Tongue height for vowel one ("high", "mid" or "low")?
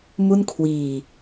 high